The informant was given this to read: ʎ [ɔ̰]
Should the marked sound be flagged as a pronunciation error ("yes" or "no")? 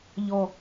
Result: yes